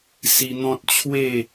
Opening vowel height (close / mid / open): close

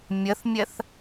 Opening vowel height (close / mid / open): mid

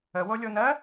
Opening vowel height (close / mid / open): mid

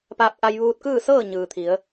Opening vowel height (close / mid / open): open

